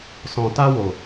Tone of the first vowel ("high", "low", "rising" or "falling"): low